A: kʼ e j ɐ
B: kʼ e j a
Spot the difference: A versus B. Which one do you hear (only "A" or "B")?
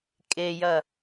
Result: A